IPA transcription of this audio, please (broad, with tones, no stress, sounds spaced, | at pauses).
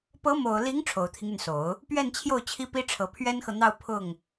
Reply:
p ɤ˧˥ m o˨˩ ʊ̯ l i˧˥ ŋ ʈ͡ʂʰ o˨˩ ʊ̯ t̪ʰ i˦ ŋ y˩ n s o˨˩˦ ʊ̯ | p ɥ ɛ˥˧ n t͡ɕʰ j o˥˩ ʊ̯ t͡ɕʰ i˥ p i˥ ʈ͡ʂʰ ɤ˨˩ pʰ ɥ ɛ˥ n x ɤ˨ n̪ ɑ˥˧ ʊ̯ pʰ ʊ˥˩ ŋ